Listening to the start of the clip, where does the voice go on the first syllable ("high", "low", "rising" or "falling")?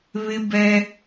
high